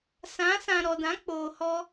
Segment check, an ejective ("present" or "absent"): absent